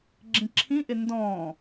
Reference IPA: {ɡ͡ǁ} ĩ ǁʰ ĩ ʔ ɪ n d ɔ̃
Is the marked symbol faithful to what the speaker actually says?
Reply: yes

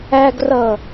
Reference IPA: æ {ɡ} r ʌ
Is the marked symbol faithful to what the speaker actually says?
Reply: yes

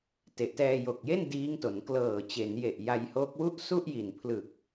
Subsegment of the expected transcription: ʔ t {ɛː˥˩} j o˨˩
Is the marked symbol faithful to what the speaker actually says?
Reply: no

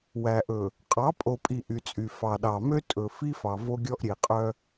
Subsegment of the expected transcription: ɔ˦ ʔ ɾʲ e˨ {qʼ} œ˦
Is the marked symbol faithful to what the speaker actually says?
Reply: yes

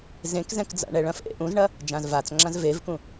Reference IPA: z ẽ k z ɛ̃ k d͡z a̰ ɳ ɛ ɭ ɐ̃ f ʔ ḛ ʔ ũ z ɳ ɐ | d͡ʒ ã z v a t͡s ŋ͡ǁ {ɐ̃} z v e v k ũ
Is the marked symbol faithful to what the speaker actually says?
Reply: no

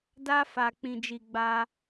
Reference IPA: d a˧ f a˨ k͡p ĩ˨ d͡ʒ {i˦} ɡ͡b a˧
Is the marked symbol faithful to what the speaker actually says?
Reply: no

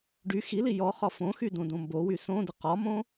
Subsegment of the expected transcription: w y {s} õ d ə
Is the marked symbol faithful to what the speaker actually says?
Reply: yes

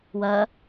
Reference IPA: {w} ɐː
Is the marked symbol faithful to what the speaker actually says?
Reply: yes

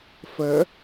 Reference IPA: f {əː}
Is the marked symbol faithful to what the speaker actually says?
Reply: yes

